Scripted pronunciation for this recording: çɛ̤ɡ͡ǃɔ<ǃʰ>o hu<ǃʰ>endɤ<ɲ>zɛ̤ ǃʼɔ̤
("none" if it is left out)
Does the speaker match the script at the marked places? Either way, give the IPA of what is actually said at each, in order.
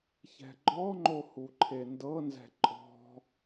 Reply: ŋ͡ǃ, ǃʰ, n

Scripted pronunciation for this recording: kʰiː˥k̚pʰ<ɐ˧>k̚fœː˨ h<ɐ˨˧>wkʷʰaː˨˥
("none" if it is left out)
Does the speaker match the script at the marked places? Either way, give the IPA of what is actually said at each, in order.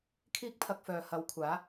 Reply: ɐ˧, ɐ˨˧

